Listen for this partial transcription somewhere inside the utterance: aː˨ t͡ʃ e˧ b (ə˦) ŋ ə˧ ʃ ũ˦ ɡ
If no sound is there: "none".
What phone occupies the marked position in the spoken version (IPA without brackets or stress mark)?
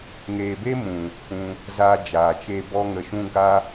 ɔ˦